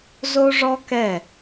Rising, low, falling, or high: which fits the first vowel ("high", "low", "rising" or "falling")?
high